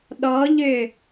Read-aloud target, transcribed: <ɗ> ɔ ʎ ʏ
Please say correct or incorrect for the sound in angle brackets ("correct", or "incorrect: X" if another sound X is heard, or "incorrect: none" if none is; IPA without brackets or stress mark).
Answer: correct